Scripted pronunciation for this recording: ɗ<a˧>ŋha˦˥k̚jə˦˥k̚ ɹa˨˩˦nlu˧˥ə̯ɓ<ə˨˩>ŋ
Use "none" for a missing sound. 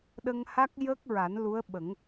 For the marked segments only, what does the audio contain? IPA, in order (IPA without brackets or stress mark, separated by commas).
ə˧, ə˨˩˦